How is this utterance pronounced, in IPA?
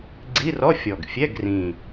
ɡ͡ǀ i˧˥˧ r ɔ˧˥˧ fʲ ɔ˨˩ ɡ fʲ ɛ˧˥˧ ɡ r ĩ˨˩

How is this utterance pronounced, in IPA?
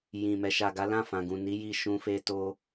j ĩ˨ m ɛ˨ ʃ a˨ ɡ a˨˦ l ã˦˨ f ã˨ ɡ ũ˨ n i˨˦ j i˧ ʃ ũ˧ f e˧ t o˧

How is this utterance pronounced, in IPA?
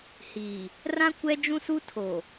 h iː˨ | r ã˦ kʷ ɛ˦ d͡ʒ ũ˦ s u˦ tʰ o˨

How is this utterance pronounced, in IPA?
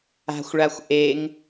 a̤ xʷ ɭ a xʷ ʔ e ŋ

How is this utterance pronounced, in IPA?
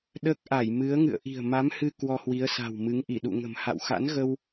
ɗ əː˦˥ k̚ ʔ a˧˩ j m ɨ˨˦ ə̯ ŋ ɨ̰˧˨ ə̯ ʔ i̤˨˩ ə̯ m a˨˦ m h ɨ˧ k w ɔ˧ h w i˨˦ ə̯ s a̤˨˩ w m ɨ˨˦ ŋ ʔ i˧˩ ɗ ṵ˧˨ ŋ ə̤˨˩ m h a̰˧˨ w x a̰˧˥ n ɣ ə˧ w

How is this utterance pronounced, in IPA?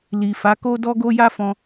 l i˨ f a˨˦ k o˦ d ɔ˦ ɡ o˦ j a˦ f ɔ̃˧

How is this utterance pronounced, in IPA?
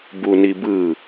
b u n i b ɯ

